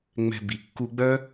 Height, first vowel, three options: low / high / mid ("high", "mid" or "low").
mid